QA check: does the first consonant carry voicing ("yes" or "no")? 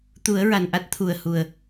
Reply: no